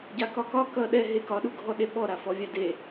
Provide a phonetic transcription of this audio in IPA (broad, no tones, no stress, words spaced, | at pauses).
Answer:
ɟakɒkɒ kʌ ɗɛ ɦekɒɗu ɡʱɔɗeɓɔ ɾafɔvʲade